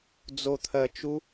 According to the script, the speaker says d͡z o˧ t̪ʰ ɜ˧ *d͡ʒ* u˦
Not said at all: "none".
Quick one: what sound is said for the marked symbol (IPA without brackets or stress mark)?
t͡ʃ